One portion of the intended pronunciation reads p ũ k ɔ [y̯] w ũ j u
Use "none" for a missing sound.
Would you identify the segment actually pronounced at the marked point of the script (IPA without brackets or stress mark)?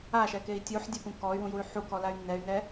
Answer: y̯